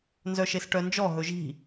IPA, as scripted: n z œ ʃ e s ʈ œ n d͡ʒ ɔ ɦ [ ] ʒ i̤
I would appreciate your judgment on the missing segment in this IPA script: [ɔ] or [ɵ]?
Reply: ɵ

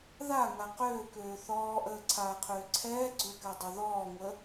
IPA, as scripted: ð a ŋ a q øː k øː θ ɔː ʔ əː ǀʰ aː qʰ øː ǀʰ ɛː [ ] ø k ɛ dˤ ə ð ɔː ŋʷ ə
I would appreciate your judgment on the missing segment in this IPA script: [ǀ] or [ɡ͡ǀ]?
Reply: ɡ͡ǀ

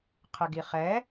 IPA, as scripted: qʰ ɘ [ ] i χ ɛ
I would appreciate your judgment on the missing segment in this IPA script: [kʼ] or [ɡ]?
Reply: ɡ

